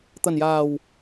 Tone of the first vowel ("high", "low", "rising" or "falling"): low